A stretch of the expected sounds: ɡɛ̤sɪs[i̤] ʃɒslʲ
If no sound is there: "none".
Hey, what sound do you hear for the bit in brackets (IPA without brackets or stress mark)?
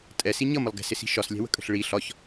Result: i̤